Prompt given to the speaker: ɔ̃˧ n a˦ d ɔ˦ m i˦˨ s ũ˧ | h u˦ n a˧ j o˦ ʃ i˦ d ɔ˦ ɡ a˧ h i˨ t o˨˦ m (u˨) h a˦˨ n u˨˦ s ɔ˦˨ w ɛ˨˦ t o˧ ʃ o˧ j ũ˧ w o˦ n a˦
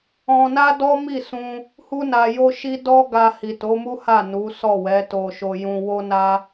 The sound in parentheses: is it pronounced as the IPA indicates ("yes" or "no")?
no